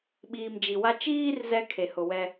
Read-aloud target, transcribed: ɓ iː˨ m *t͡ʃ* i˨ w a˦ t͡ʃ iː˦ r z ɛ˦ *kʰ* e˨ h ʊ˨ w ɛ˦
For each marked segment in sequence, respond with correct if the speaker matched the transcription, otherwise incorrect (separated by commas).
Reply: incorrect, correct